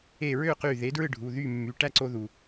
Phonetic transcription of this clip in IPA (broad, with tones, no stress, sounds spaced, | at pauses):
e˧˩ ɹ ø˥˩ q y˧˩ ð e˩˥ d ɹ ɯ˥˩ ɖʱ u˩˧˩ ð y˥˩ mː y˩˧˩ ʈ æ˥˩ ǀ o˧ ð u˩